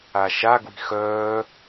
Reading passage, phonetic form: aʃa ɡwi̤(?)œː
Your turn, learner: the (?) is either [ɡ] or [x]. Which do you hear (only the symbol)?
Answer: x